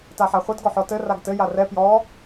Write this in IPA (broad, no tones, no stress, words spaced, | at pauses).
taħaχʷɘd ɡɔħɔtɘ raɡtɘ jarɛ pjɔ